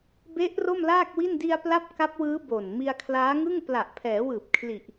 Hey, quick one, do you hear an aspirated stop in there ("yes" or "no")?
yes